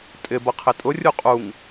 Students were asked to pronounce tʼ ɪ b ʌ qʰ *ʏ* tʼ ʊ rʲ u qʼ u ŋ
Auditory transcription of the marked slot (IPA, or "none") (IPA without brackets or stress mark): ɪ